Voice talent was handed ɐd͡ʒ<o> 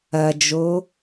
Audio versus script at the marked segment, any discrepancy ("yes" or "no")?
no